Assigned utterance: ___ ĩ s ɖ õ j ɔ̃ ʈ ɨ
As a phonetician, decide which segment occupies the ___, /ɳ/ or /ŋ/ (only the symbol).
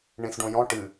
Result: ɳ